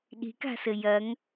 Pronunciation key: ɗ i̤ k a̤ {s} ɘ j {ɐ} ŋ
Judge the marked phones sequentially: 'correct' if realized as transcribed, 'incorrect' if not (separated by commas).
correct, correct